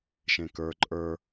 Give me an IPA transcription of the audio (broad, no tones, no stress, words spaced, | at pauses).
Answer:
ʃẽkə˞ ǃʼə˞